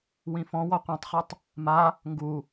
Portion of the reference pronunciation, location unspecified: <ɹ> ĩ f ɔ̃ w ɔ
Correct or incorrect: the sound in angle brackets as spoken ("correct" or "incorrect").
incorrect